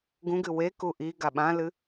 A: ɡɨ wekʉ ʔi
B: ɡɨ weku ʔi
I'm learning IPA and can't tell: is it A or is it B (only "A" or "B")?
B